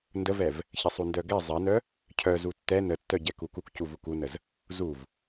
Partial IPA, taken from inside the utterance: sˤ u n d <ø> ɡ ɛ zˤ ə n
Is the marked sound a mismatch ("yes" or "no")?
yes